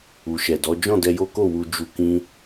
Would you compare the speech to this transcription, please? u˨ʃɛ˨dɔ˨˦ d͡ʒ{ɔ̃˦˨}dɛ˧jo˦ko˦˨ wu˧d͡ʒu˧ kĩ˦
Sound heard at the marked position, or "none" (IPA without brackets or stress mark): ɔ̃˦˨